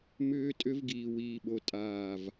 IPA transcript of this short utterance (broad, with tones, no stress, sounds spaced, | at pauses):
m ʏː˦ tʼ ʏ˦ v ɡ iː˨ w iː˨ ɓ o˨ tʼ aː˦˨ v